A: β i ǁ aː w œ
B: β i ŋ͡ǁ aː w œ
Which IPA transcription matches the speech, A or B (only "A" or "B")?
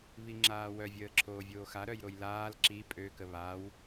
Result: B